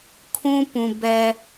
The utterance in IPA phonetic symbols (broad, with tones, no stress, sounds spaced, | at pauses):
kʰ ũ˦ p ũ˨ b ɛ˦